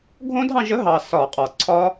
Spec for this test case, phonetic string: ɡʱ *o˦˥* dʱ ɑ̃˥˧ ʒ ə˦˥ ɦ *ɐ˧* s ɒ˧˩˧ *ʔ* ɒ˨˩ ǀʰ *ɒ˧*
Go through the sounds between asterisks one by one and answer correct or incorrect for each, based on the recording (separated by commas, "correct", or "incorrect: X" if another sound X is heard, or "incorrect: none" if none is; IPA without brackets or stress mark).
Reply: incorrect: õ˦˥, incorrect: ɑ˧, incorrect: qʼ, incorrect: ɒ˦˥